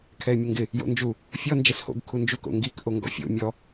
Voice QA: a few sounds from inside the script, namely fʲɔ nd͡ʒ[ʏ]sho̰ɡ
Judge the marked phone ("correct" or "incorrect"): incorrect